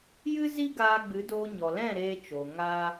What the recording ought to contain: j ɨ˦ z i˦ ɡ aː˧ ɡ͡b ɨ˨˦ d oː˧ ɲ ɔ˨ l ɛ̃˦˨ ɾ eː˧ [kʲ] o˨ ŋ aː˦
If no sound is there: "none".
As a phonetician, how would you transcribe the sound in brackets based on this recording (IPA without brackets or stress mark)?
t͡ʃ